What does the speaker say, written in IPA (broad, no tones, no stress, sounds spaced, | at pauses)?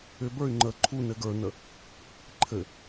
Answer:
ʏ b ə˞ y̯ ŋ͡ǃ ə ǃʰ u n ɘ ɡ ə˞ n ə | ǃʰ ɘ